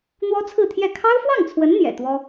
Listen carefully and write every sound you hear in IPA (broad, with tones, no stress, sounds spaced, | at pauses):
n̪ w ɔ˥ t͡sʰ ɹ̩˥˧ t̪ʰ j ɛ˥˩ kʰ ɑ˥ ʊ̯ f w ɑ˥˩ ŋ t͡sʰ w ə˧˥ n n̪ j ɛ̰˨˩ t̪ w ɔ˥